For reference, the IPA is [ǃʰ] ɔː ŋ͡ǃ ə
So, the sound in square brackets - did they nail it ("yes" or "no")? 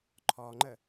yes